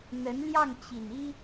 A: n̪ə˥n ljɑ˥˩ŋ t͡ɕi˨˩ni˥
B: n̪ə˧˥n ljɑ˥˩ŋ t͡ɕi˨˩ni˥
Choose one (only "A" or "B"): B